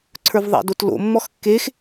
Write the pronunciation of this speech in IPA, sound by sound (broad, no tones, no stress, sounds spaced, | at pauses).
ǀʰ ə˞ v ðˤ a̰ d o t l o̰ mː ɔ x kː e x